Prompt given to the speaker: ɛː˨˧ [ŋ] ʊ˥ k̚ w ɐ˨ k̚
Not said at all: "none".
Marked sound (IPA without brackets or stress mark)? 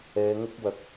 ŋ